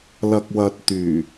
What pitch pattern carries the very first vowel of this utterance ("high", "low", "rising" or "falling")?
low